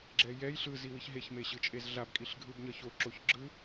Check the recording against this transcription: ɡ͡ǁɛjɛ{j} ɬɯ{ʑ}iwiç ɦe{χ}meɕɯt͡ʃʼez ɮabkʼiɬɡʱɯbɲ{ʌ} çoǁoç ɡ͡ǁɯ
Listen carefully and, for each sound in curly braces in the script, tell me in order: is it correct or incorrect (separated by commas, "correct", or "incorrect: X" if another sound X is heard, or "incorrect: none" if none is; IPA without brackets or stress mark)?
correct, incorrect: z, incorrect: ç, correct